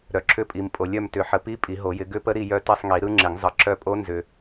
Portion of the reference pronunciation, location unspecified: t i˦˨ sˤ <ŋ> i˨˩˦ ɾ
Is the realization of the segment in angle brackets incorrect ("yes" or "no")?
no